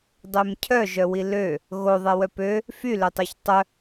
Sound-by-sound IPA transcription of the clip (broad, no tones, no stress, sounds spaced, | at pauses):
dˤ ø m cʰ œ ʒ œ w i l ø | ɣ o ðˤ ɛ w œ p ø | f y l ø tˤ ø ç tˤ œ